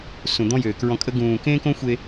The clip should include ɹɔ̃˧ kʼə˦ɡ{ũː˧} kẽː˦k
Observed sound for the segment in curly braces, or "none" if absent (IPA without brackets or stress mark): ũː˧